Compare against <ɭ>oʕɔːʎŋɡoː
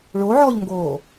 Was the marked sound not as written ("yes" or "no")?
no